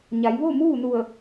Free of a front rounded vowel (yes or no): yes